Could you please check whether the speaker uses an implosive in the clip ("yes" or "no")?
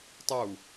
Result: no